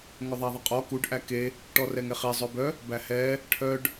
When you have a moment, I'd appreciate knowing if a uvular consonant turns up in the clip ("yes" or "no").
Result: yes